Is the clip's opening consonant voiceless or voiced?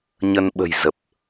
voiced